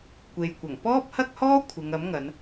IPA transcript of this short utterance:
kʷ e˨ j kʷ ɐ˨˩ ŋ p ɔː˥ p̚ h ɐ˥ k̚ h ɔː˥ kʷʰ ɪ˨˧ ŋ ɐ˨˥ m ŋ ɐ˨˧ n

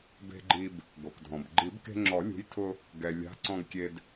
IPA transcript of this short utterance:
b e̤˧ ɡ͡ǃ i˧ b | ɡ o˩ k dʱ ɔ̃˩ b ɡ͡ǃ i˨˩˦ b k e̤˧ ŋ͡ǁ ɔ˨˩˦ lʲ ṳ˨˥ j tʰ ʊ˧ | ɡ ɛ˩ lʲ a̤˨˥ ǀ ɔ̃˧ ɡ kʲ e˧ d

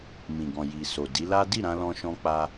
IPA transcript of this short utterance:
m ĩ˨ ɡ ɔ̃˨ j i˨ s o˨ d i˨˦ l a˦ d i˦˨ ɾ ã˧ l ɔ̃˧ ʃ ɔ̃˧ k͡p a˧

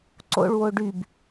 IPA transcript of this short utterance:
ǀ o̰ ɭ w o ɖ y b

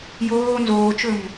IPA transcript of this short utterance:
j oː n z oː t͡ʃ ɵ m

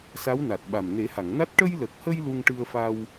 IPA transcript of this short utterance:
s a˧˥ w n a˨˩ t̚ ɓ a˨˩ m n e˨˩˦ h a˨˩˨ ŋ n a˦˥ t̚ ʈ ə˧ j l ə˨˩ k̚ h ə˧ j l u˧ ŋ ʈ ɨ˧ ə̯ f a˧ w

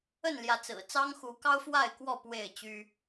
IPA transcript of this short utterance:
ə˥˨ n l j ä˨˦ t͡s ɹ̩˨˩ t͡s ɑ˦ ŋ x u˨˦ k ɑ˦ ʊ̯ f w a˥˨ ɪ̯ k w ɔ˥˨ p w e˥˨ ɪ̯ t͡ɕ y˦

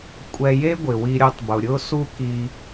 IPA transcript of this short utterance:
kʷʼ ɛ˧ j e˦ ɡʷ ɪ˨ w i˧ ɾʲ o˧ tˤ b ʊ˨ ɾʲ ʊ˦ s u˦ k i˧

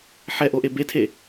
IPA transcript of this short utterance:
ħ ɛ ʔ o ʔ e b e tʰ e

